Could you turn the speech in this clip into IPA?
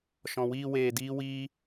ʃɔ̃˨wiː˧ weː˧diː˦wiː˦

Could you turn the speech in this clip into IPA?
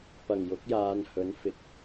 pɐ˨˩ŋjʊ˨˥k̚ jaː˨˧nhɵ˨˥n fɪ˨k̚

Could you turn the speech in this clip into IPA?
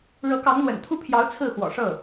ɻɤ˧˥kɑ˧˥ŋn̪wə̰˨˩n t̪ʰu˥pʰjɑ˧˥ʊ̯ t͡sʰɹ̩˥˩xwɔ̰˨˩ʂɤ˥˩

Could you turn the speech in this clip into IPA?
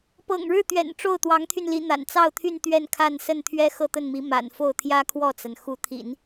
pɤ̰˨˩ŋɻɻ̩˥˩t̪ɥɛ̰˨˩n ʈ͡ʂo˥˩ʊ̯t̪wɑ˧˥ŋt̪ʰy˧n li˧˥ n̪a̰˨˩nt͡sɑ˥˧ʊ̯t̪ʰy˥˧n t̪ɥɛ˥˧nkʰa˥˧nsə˥˩n t̪ʰɥɛ˥xɤ˥˧t̪ə˥˩nmi˧˥ ma̰˨˩nfo˥˩ʊ̯ t̪ʰjä˥kʰwɔ˥˩t͡sa˩n xu˧˥t̪ʰḭ˨˩˦n

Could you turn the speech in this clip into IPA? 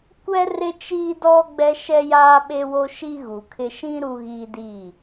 kʷɛ˦ rɪ˦t͡ʃiː˦dɔ˦ ɡ͡bɛ˦ʃɛ˦jaː˦ ɓe˦wo˦ ʃi˦ɣu˨kʰɪ˦ ʃĩ˦ ɾu˦ɣiː˦diː˦˨

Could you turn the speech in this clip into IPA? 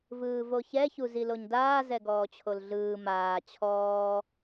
vɯːvoçɛ çuziloɲdaː zɛɡɔːt͡ɕʰolɮɯː maː t͡ɕʰɔː

